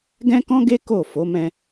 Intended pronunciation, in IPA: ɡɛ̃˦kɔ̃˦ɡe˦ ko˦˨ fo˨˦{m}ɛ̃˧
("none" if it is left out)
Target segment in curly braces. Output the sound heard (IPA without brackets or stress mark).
m